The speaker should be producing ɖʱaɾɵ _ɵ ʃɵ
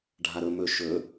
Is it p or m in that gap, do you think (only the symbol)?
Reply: m